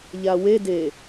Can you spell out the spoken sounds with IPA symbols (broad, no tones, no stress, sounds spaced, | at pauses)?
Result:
ʎ a w e d e